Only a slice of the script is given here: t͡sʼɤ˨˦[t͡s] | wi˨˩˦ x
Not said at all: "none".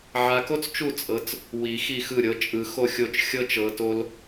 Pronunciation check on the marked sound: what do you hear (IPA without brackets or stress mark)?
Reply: t͡s